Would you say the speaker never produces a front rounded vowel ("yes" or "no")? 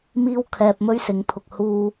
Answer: yes